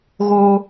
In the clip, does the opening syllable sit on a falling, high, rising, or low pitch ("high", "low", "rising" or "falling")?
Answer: high